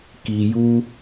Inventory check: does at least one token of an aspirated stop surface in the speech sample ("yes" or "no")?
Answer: no